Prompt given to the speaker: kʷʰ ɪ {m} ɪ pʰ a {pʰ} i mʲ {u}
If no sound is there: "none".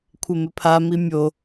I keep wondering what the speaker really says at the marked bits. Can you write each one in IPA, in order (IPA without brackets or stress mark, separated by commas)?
m, m, o